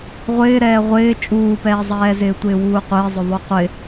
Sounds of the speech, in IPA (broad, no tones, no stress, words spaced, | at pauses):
ʁʷɪː ɾɛːʁʷɪː t͡ʃʼuːpɛːzˤɛːzɪː tʷɪːwuːqʷɪːzˤʊ ðˤuqʷɪ